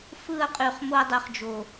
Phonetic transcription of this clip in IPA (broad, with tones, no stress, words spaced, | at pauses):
fɯ˦˨ɐ̯qʼy˨χ mo˦ɐ̯dˤy˨χd͡ʒo˨